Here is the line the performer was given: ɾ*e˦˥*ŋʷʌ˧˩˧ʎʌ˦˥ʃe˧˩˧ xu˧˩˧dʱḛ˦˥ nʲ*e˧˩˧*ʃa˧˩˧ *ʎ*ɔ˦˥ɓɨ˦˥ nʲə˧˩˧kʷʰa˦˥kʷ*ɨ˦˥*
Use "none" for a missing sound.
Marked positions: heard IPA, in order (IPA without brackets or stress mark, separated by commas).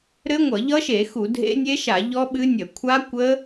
ɘ˦˥, e˦˥, ʎ, ə˦˥